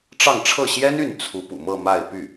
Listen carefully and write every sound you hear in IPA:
ʈ͡ʂ ɑ˥˧ ŋ ʈ͡ʂʰ ɤ˥˩ ɕ j ɛ˥ n y˥˩ n t͡sʰ u˧˥ p ṵ˨˩ m ɤ˥˧ m a˥˧ ɪ̯ p y˥˩

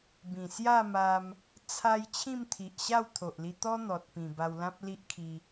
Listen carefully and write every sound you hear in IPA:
b ĩ˨˩ s j a˥˧ m a˧ m | t͡sʰ a˧ j t͡ɕʰ ĩ˥˧ m t̪ʰ i˨ ʔ ɕ a˥˧ w t̪ʰ o˨ ʔ l i˧ t̪ ɔ˦ n̪ ɔ˨ t̚ p ĩ˨˩ b a˧ w l ã˦ p̚ l i˦ ʔ kʰ i˧

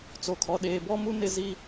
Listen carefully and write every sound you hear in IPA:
t͡s o˨ kʰ ɔ˨ ɗ eː˨ b ɔ˦ m u˦ n ɪ˦ z i˦

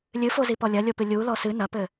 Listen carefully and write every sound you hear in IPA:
lʲ ɨ f o z i p ɔ lʲ ɐ lʲ o p ɨ lʲ u l ɔ s ɨ n ɐ p ɘ

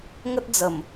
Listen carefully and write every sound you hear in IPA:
ŋ ə˦ t̚ d͡z ə˨˩ m

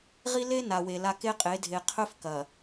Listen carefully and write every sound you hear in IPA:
ʁ i˦ l e˦ n a˨ w e˨ l a˦ k e˦ qʼ e˨˦ dʱ e˨ qʰ ɵ˦ f k ɐ˨

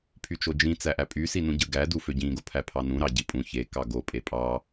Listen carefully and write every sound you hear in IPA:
pʰ y t͡ʃ o d͡ʒ ĩ t͡s æ ʔ æ pʼ y s i n ũ ɟ ɯ ɡ æ d u f ø ɟ ĩ ɡ o pʰ æ pʰ ɑ n ũ ɾ ɑ ɟ i pʼ ũ ç e k ɑ ɡ o pʼ e pʼ ɑ

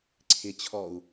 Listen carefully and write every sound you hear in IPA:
ǀʰ ɪ t͡ɕʰ ɔ u̯

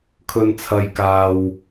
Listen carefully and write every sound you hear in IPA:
kʰ ɵ˧ n t͡sʰ ɐ˧ j k aː˧ w

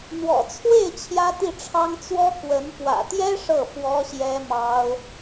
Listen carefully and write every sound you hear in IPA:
n̪ w ɔ̰˨˩ t͡sʰ w e˥˩ ɪ̯ t͡ɕʰ j ä˥ t̪ i˥˩ ʈ͡ʂʰ ɑ˥ ŋ t͡s w ɔ˥ k w ə˧˥ n p w ä̰˨˩ t̪ j ɛ˥ ʂ ɤ˥˩ f w ɔ˥ ɕ j ɛ˥ m ɑ˥ ʊ̯

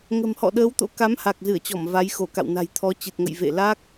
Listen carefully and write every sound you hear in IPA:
ŋ ə̤˨˩ m h ɔ̰˧˨ ɗ əː˨˦ w t̪ o̰˧˥ k a˨˦ m h a˨˩ k̚ z ɨ˧˩ ə̯ t͡ɕ ɔ˧˩ m v a˨˦ j x o˧˩ k a̰˧˨ w n a̤˨˩ j t̪ʰ ɔ˨˦ t͡ɕ ɨ˨˩ t̚ ŋ ə̰˧˨ j v ḛ˧˨ l a˦˥ k̚

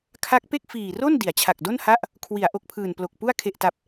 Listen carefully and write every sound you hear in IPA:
kʰ a˦˥ k̚ p e˥˩ k̚ f iː˨˩ r o˥˩ n d i˩˦ a̯ t͡ɕʰ a˨˩ k̚ d o˥˩ n h a˥˩ ʔ | kʰ w i˩˦ a̯ ʔ o˨˩ k̚ pʰ ɯː˨˩ n p l o˨˩ k̚ p u˥˩ a̯ kʰ e˨˩ ʔ t a˨˩ p̚

